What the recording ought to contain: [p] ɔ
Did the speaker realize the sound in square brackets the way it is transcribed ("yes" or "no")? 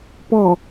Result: yes